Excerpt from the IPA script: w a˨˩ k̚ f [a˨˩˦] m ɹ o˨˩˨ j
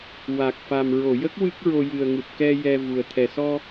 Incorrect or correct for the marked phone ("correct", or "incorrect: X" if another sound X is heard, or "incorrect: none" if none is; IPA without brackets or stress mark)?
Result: incorrect: a˨˩